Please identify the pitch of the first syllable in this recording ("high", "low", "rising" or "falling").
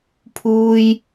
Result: high